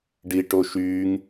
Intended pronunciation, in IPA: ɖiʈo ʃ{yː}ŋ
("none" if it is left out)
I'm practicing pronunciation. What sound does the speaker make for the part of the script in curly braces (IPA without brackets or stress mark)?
yː